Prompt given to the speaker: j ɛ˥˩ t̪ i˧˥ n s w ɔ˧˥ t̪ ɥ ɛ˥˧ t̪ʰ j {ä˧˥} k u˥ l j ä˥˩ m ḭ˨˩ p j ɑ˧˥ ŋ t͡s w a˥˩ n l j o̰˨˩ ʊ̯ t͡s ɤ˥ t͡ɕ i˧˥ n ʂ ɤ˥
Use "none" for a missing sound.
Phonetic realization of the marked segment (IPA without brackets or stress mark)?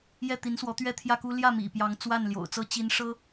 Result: ä˥˩